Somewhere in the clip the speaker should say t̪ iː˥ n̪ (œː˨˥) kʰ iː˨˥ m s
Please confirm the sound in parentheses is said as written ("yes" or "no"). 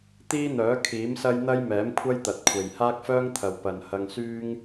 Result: yes